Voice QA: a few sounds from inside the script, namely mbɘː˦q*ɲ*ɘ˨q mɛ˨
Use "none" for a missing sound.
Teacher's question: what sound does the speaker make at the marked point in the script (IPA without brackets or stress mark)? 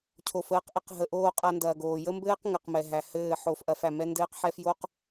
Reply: ŋ